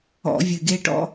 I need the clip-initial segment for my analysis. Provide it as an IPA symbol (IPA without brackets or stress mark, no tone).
ɔ̰